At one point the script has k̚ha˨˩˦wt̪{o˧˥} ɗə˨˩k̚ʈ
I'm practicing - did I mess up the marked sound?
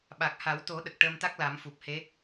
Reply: yes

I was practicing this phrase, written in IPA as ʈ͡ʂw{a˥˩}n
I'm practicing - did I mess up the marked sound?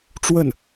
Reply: yes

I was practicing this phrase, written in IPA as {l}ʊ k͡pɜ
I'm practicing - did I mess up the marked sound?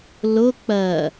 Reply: no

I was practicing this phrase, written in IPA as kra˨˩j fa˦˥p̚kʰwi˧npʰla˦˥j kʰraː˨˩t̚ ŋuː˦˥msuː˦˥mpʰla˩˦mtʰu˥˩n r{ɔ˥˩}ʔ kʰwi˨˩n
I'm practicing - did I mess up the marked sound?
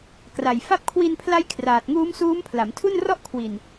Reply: no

